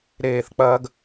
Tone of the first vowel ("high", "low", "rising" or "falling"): falling